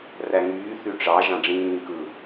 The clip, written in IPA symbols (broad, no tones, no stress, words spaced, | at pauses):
ræŋyː θyʈ͡ʂɑ ʒɑ̃ɖ͡ʐĩː kɯ